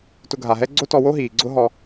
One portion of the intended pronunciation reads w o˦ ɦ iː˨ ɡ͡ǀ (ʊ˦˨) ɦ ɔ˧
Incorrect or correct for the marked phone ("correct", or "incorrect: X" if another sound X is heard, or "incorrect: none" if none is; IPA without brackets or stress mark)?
incorrect: ʊ˦